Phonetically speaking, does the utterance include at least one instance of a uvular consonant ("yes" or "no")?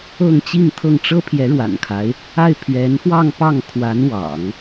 no